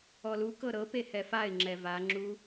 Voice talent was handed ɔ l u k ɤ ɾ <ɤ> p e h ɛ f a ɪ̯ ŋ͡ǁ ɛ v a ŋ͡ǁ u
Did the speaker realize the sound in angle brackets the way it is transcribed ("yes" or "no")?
yes